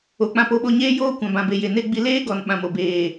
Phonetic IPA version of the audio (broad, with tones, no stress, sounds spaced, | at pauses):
o˨ k͡p ã˧ p o˦ ɓ o˧ ɲ eː˦ j oː˦ kʷ ã˨ b ã˨ b e˨ j e˨ n e˦ ɡ͡b i˧ l eː˦ ɡ ɔ˨ n ɓ ã˨ m o˨ b eː˨